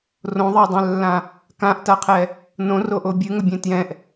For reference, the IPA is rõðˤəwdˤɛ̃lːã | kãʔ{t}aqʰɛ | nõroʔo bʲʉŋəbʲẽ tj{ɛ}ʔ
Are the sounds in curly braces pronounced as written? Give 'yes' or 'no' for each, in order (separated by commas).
yes, no